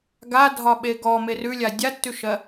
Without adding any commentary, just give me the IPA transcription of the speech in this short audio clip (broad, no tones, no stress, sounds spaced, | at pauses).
ɡ a dʱ ɒ ɓ e ɡ ɔ m e r ʉ lʲ a dʲ a tː ʉ ʃ ɜ